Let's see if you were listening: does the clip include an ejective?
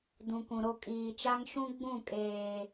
yes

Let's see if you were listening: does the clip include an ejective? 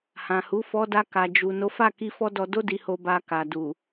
no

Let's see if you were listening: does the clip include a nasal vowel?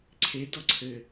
no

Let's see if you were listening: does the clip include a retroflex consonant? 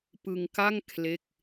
no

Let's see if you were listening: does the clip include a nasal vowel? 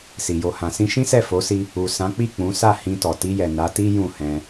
yes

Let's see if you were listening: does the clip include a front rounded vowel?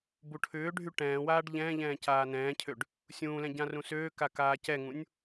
yes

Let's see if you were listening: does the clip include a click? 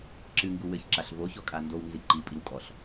yes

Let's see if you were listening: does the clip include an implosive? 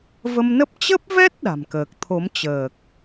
yes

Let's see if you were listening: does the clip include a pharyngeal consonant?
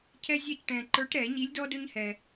no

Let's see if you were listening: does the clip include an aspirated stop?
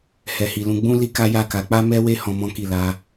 no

